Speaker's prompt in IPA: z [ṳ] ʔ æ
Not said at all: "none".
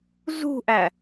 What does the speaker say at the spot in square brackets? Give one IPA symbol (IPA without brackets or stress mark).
ṳ